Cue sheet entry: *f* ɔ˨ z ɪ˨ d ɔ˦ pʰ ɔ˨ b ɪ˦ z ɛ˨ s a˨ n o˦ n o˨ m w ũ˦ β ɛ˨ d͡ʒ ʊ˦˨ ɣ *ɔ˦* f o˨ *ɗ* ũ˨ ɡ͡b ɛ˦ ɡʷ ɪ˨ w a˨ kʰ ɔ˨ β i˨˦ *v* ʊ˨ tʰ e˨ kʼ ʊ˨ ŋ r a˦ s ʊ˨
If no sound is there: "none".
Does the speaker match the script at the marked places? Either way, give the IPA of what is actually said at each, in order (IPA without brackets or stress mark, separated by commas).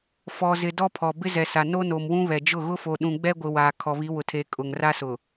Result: f, ʊ˦, ɗ, w